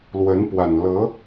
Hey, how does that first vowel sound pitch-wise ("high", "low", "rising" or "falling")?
rising